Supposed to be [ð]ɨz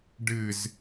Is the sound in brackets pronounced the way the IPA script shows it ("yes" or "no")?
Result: no